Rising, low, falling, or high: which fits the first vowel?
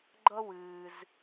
high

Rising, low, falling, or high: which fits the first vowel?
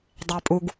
high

